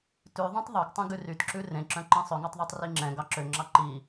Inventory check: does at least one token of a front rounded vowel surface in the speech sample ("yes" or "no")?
yes